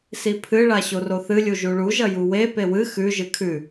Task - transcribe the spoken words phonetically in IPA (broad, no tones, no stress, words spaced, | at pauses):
sipʰɨɭa ɕoroθɨlʲu ʒuɭuʒɐ juwe pewɨ xʉ ʒɨkʰʉ